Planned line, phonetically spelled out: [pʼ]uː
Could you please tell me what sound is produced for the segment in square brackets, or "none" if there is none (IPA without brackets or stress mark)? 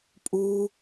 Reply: pʼ